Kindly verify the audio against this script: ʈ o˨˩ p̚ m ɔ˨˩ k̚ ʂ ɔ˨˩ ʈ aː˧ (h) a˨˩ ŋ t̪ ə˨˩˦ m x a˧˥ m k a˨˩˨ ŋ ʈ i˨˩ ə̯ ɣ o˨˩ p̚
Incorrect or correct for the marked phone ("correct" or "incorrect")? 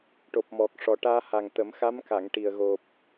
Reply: correct